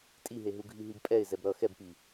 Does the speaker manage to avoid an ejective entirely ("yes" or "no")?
no